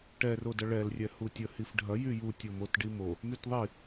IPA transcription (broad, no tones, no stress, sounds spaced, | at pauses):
ʈ ɛ r o d ɐ ɭ ɛ l rʲ ɛ h u tʲ ə h i f ɖʱ ɐ j y j u tʲ o m o t ɖ i m o | m y t ðˤ i